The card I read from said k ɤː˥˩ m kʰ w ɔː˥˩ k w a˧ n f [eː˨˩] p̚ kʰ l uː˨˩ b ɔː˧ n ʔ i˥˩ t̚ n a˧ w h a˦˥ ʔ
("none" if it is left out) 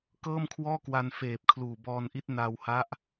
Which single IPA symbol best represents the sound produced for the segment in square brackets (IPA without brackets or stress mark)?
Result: eː˨˩